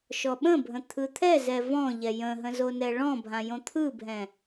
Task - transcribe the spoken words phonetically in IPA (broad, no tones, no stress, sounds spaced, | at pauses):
ʃ ɔ ɓ ə̃ bʱ ə̃ t̪ʰ ɯ t̪ʰ ɛ z ɛ v ɔ̃ ʎ ɛ j ə̃ ɦ ə̃ z o n ɛ ɭ ɔ̃ bʱ ã j õ t̪ʰ ɯ bʱ ɛ̃